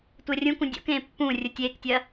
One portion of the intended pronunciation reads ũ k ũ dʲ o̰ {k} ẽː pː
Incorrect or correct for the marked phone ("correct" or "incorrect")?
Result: correct